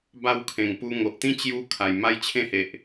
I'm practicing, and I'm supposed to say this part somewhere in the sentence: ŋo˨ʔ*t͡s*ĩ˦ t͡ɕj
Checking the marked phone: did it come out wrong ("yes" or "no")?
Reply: yes